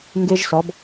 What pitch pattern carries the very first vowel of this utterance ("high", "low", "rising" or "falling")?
high